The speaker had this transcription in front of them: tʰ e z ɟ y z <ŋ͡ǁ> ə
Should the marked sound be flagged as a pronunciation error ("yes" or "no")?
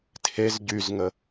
yes